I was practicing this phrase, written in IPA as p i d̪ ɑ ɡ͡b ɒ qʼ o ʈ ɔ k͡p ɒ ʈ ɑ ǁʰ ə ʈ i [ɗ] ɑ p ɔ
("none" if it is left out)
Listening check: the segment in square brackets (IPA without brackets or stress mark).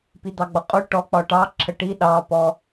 ɗ